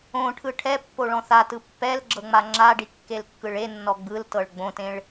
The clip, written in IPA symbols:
õ ʈʰ ɯ ʈʰ ɛ pː o ɭ ɔ̃ θ a t ɯ pː ɛ l ɡ͡ǁ ɤ ŋ͡m a ŋ͡ǁ a ɖ i kː e l kː ɯ ɭ e nː ɔ ɡ͡b ɯ l t ɤ ɭ ɡ͡b õ t ẽ ɭ

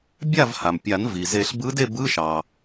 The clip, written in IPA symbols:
bʲ a˥˨ v h a˩ m pʲ a˨˩˦ n v i˩ z e˨˩˦ ɬ b ɯ˧˥ d e˥˨ b ɯ˧˥˧ ʃ ɑ˩

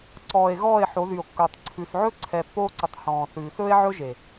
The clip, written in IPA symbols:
ǀ ɔː˨ e̯ ɣ ɔː˦˨ e̯ ħ o˨˦ ð y˨ o̯ kː ɵː˨ tˤ ǀʰ ʉ˨ s ʕ ɵ˦ ǀʰ ɛ˨ pː oː˦ ǀ ɵ˨ tˤ h ɔ̃ː˨ θ ʉː˨ s ɵː˦ e̯ ʕ ɵ˦ ʒ e˨

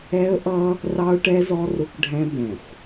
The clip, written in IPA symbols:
ɛ˦ ə̯ ʔ ʌ˦ | r ɑ˦ ʊ̯ ʈ ɛ˦ z ɔ˦ r ʊ˦ k ɖʱ ɛ̃˦ b ɛ̃˨ xʷ

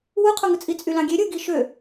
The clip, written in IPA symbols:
w u qʰ o ŋ ɯ t͡sʼ i t͡sʼ y l ɑ̃ ɡʲ e ɾʲ ɯ ɡ i ʃ ø

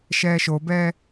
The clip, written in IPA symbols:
ʃ ɛː ʃ o b ɛː

